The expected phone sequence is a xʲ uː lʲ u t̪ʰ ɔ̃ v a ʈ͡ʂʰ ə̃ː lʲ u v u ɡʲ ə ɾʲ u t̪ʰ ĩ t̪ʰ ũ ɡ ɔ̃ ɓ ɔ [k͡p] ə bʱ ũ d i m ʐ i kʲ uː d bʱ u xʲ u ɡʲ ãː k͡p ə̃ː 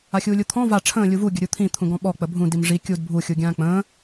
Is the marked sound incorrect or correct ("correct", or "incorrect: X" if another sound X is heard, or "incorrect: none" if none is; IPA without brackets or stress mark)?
correct